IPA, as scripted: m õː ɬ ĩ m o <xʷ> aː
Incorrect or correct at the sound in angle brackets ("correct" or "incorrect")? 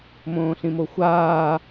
correct